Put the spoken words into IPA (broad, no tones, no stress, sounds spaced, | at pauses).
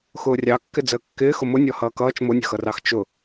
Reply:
x ʊː rʲ ɑ kː ɪ d͡z əː kː ɪː x ʊ m ʊ nʲ ɔ h ʌː k ʌː t͡ʃ m ʊ nʲ ə̤ x ʌ r ɑ x t͡ʃ ʊ